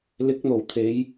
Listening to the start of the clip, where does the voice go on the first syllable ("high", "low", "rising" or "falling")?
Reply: rising